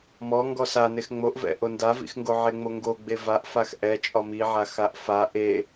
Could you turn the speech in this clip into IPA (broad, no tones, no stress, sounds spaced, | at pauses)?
m ɔ ŋ ɡ ɔ s a n e x ŋ͡m o ʔ v ɛ̰ ʔ o n d a v ḭ x ŋ ɡ o ʕ e ŋ͡m o ŋ ɡ o ɡ͡b e v a ʔ f a x ʔ ɛ t͡ʃʼ ɒ m i ʕ a x a ʔ f a ʔ e